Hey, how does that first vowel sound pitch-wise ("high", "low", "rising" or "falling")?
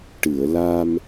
low